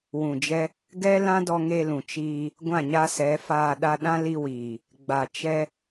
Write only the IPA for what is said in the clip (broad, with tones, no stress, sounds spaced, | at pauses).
w ũ˨ d͡ʒ ɛ˦ | ɡ ɛ˦ l ã˦ d ɔ˧ ŋ e˧ l ũ˨ t͡ʃ iː˧ | ɡʷ ã˦˨ ɲ a˦ s ɛ˨˦ f aː˧ ɗ a˧ ɗ ã˦ l i˧ w iː˨ | ɡ͡b a˨ t͡ʃ ɛ˦